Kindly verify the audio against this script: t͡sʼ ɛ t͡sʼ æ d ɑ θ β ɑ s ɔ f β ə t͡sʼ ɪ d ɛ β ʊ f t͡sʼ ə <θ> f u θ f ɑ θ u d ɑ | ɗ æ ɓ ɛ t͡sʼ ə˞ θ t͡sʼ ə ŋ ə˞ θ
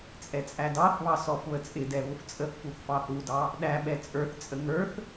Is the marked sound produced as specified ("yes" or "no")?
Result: yes